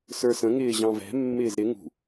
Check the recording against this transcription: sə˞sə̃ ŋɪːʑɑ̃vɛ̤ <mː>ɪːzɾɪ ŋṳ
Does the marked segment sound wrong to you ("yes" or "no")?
no